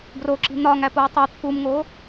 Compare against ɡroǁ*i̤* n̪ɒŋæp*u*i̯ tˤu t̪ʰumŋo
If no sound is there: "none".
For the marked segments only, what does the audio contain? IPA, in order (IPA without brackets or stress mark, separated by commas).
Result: i̤, o